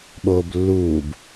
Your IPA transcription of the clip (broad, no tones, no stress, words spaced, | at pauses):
ɓoːblːuːb